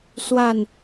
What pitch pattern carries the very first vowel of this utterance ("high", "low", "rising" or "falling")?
falling